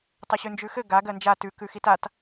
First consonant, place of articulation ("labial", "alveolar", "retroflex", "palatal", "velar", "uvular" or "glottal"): alveolar